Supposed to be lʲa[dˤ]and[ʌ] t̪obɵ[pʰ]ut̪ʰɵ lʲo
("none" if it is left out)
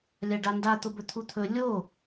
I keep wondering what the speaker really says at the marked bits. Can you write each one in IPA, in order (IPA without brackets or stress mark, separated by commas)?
ɖ, a, t̪ʰ